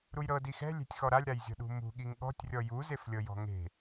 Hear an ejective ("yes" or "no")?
no